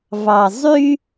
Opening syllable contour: low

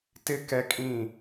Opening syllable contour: high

